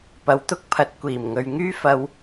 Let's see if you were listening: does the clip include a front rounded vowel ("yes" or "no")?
yes